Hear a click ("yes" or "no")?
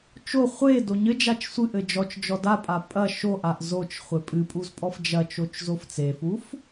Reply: no